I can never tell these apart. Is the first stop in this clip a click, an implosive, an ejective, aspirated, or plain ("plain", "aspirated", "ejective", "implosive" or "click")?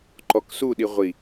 click